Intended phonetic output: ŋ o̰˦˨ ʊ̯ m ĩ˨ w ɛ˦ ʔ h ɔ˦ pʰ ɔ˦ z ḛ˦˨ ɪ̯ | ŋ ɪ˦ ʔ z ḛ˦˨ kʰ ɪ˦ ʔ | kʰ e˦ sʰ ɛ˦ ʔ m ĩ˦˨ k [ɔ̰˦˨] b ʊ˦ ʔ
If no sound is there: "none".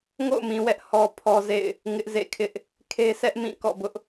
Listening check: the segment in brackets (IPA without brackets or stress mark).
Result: ɔ̰˦˨